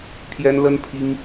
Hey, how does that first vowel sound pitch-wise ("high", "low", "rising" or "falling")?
high